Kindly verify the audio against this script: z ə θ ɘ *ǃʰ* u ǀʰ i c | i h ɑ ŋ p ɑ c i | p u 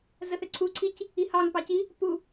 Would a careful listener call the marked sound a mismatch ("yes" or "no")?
yes